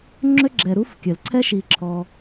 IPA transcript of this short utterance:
ŋ͡ǁø˥ɡ͡ǁɛ˨ɾu˥f kʲœ˩lǀʰɛ˥ʃi˨ ǁʰɔ˨

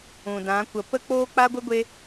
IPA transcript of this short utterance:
ũ˨dã˨˦kʷə˨˦ pə˦ k͡poː˦k͡pa˦ɡʷə˦ɡʷe˦

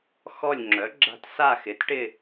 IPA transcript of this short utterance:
xɔ˦˨lʲŋ͡ǁœ˩˥ɡ͡ǁa̤˦˨t sa˦˨xɪ˩˥t ʈɪ˦˨

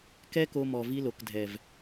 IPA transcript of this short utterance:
kɛ˦ko˧mɔ˨ vi˧lo˨kdʱɛ˨v

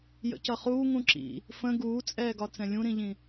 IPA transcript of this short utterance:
jə̰cʌχuː ŋũǁḭ | fə̃ ɡuːt͡sʼɛːɡɒ t͡sɛ̃lʲũɾĩʎĩ

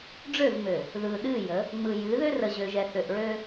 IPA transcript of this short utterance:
ɖ͡ʐø˦˨vmø˨ | ðɯ˨ɗɨ˦˨ jə˨˦ | ŋ͡mɯ˨jɨ˨˦ðø˦ rə˨ʑø˨ʒɛ˨ θø˨ʔɹø˦

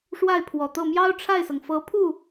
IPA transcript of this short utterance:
ʂwa˥˩ɪ̯pʰwɔ˨˩t̪ɤ˥˩ mjɑ˥ʊ̯ʈ͡ʂʰa˥˩ɪ̯sɤ˩ŋ fɤ˧˥pʰu˥˩

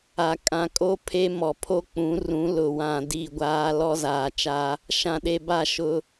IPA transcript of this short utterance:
a˨ kʼã˨kʼo˦ pʰe˦mɔ˨pʰo˦k͡pũ˨˦ rũ˨˦lʊ˨wã˨ di˦˨ɡʷaː˦ lɔ˦zaː˨t͡ʃa˦ | ʃã˨ɗe˨ba˦˨ ʃʊ˦

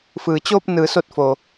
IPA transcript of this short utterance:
fɯː˩t͡ɕoː˧p̚nɯː˩so˧˩t̚ fo˩

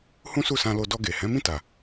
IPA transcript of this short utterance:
hũ˦su˦˨sã˧lo˧ dɔ˧ ɡe˨ hɛ̃˨˦mĩ˦˨ta˨

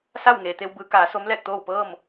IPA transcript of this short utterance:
sa˥˨wŋeː˩t̪e˧w bɯː˩˧kaː˩˧ so˧˥mlɛː˥˨k̚t̪oː˥˨w pɤː˥˨m

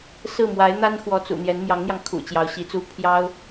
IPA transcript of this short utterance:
sɹ̩˥˩mwa˧˥ɪ̯n̪a˥nxwɔ˧˥ t͡sṵ˨˩n̪jɛ˧˥n mjɑ˧˥ŋn̪jɑ˧ŋ kʰṵ˨˩t͡ɕjɑ˧˥ʊ̯ɕi˧˥t͡su˥ pʰjɑ˥ʊ̯

